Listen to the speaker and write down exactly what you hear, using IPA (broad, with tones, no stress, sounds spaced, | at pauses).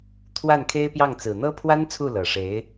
t̪ʰ w a˥˩ n kʰ e˥ ɪ̯ p j ɑ˥˩ ŋ t͡s ɹ̩˨˩ n̪ ɤ˥ pʰ w a˥ n t͡sʰ u˥˩ l ɤ˨˩ ʂ e˧˥ ɪ̯